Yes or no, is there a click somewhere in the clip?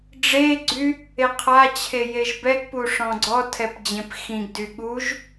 yes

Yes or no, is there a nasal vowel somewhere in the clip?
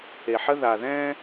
yes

